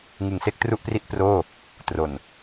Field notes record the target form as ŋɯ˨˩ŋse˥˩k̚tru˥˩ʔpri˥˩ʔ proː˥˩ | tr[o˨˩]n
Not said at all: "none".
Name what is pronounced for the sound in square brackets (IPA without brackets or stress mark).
o˨˩